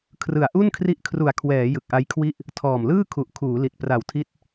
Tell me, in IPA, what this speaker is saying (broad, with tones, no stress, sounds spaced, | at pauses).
kʰ r ɯ˨˩ a̯ ʔ u˥˩ n kʰ r i˦˥ ʔ kʰ r u˨˩ a̯ kʰ w ɛː˩˦ j ɯ˨˩ k̚ ʔ a˦˥ j kʰ w i˥˩ ʔ | tʰ ɔː˨˩ m l ɯː˥˩ kʰ u˨˩ ʔ kʰ uː˩˦ l i˨˩ t̚ p r a˨˩ w tʰ i˦˥ t̚